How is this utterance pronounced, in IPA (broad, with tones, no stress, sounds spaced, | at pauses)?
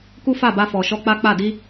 k u˦ f a˦˨ b a˧ f ɔ˨ ʃ ɔ˧ k͡p a˦ k͡p a˦˨ d i˧